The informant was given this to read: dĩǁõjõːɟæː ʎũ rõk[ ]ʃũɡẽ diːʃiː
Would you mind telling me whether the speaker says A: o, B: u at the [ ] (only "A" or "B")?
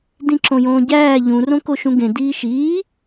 A